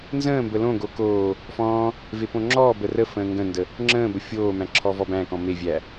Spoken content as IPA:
nzə̃ːmbə lõɡo koː | fɔ̃ː | vepõŋ͡ǁɔːbə rəfə̃ː ŋɡə̃ndə | ŋ͡ǁə̃ːbə fʲoːmæ̃ ǁʰɔvɔbæ̃kɔ̃ mevʲæ

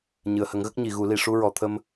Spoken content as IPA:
ɲɨ˨˩˨ə̯hə˨˩˦ŋɣə˦˥k̚ ɲi˨˩˨ɣu˨˩˦li˨˩˨ ʂu˧ɹɔ˨˩˨t̪ʰə˧m

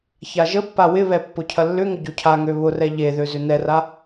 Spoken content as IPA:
çaʒəpːa wɪβɛ pːʊcʰɐlːʏŋʊ ɟocʰaŋø βʊrɛ ʎeðø zʏnɛra

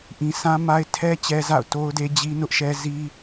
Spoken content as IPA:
ʔĩ˨ sã˦ma˦ɪ̯ tʰɛ˦ t͡ɕɛ˦za̰˦˨ʊ̯to˦ʊ̯de˦ d͡ʑi˦nʊ˦ʔʃɛ˦ zi˦

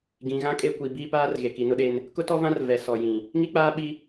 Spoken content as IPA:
ɡĩ˨ɣã˦ kʼe˦kʷi˨ biː˦paː˦rɣe˨ki˨ nʊ˦ɗe˦n | kʊ˦tɔ˦vã˦r vɛ˨ sɔ˨jĩ˨ | ŋi˦k͡paː˦ɓi˦

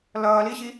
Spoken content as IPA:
lʌːliɕi

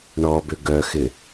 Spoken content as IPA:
ɳɔbʏ ɡœxɪ

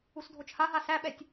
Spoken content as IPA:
usdʱot͡ʃhaɦa sæɓɛtʲ

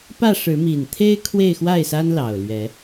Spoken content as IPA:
pä˥˨ ʂɻ̩˨˦ mi˨˩nt̪ʰe˦ɪ̯ kʰwe˥˨ɪ̯ xwa˥˨ɪ̯sa˦nlɑ˨˩ʊ̯ lɥɛ˨˦

